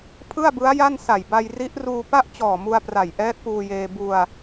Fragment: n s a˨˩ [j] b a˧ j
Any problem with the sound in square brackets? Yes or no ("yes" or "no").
no